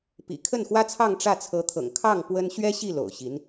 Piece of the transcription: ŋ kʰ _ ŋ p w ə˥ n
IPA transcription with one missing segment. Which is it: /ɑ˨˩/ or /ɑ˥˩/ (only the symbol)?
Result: ɑ˥˩